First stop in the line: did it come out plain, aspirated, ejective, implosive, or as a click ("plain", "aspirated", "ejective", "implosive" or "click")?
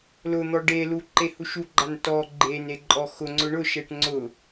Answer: plain